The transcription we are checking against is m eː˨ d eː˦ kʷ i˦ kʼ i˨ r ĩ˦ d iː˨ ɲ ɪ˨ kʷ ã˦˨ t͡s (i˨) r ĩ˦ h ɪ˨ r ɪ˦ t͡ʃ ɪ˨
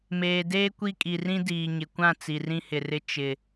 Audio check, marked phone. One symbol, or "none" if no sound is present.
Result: i˨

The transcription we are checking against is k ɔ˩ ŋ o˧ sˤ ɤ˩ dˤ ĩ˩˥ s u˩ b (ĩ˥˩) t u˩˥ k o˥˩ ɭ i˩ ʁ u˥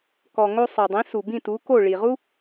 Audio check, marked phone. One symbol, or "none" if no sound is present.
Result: ĩ˥˩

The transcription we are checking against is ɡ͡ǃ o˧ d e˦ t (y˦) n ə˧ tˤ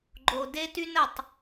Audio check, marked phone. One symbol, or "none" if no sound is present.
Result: y˦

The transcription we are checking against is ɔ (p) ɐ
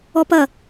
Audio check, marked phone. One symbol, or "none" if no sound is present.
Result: p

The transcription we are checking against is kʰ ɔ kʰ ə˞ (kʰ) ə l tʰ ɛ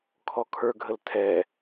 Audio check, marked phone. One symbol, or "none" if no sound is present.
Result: ɡʱ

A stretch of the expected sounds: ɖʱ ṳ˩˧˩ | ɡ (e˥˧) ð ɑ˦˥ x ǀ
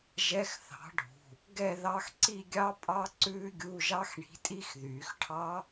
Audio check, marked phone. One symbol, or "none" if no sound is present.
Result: ɛ˥˧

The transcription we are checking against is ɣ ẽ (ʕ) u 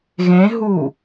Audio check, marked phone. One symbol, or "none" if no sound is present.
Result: ɦ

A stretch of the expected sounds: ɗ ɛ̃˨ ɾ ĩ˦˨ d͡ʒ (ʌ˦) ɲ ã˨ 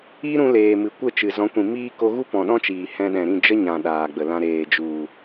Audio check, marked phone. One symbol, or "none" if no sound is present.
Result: ə˦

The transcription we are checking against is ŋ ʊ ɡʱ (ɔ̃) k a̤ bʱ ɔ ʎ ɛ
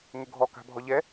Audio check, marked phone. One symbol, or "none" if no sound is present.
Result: ɔ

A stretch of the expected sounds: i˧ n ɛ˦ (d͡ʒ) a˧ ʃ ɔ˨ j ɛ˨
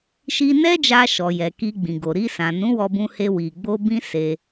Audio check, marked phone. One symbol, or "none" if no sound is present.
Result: d͡ʒ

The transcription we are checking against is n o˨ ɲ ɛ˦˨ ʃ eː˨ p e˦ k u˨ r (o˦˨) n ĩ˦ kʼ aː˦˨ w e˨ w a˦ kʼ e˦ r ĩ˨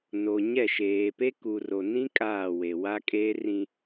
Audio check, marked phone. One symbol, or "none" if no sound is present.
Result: o˨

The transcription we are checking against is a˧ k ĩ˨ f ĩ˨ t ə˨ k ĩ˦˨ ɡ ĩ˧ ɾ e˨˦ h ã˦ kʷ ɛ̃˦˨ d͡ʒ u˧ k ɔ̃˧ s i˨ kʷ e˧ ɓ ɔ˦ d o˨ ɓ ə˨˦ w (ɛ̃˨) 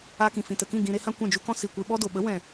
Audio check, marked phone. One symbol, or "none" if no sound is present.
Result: ɛ̃˨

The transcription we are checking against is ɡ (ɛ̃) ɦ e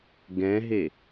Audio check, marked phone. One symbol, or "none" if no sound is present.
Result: ɛ̃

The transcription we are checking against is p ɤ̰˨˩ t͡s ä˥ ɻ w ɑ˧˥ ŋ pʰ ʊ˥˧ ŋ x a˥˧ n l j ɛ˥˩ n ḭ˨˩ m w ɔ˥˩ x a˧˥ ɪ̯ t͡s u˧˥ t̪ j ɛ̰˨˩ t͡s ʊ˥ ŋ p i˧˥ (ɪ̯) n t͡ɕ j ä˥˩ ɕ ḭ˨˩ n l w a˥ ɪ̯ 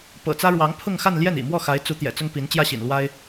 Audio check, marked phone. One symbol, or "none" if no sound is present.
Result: none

